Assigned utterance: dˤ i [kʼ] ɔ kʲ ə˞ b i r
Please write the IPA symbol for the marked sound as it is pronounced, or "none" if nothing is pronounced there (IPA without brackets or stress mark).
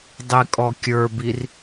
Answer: kʼ